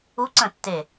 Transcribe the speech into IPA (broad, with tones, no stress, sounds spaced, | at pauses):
u˧˥ ǀ ə̃˧˩ tː e˧˩